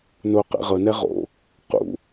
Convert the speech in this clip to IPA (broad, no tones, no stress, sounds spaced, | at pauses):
n o q ɛ̰ ʁ ɤ n ɛ ʁ o̰ | q ṵ